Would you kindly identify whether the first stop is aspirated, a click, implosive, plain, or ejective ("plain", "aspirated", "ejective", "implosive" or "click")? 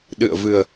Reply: implosive